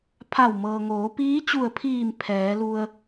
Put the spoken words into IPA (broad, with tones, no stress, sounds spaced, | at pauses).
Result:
pʰ a˧˩ w m ɤː˩ ŋ oː˩˧ p iː˧˥ t͡ɕ u˧˩ ə̯ pʰ iː˧˩ m pʰ ɛː˩˧ l u˧ ə̯